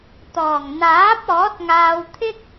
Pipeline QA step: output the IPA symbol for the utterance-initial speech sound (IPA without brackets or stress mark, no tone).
t̪